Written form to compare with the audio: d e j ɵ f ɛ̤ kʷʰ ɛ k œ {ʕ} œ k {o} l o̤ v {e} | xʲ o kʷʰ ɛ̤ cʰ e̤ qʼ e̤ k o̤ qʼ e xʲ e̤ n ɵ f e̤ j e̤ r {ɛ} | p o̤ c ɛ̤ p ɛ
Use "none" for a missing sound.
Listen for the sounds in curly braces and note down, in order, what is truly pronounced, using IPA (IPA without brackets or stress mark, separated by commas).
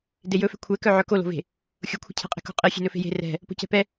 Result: ʕ, o, e̤, ɛ̤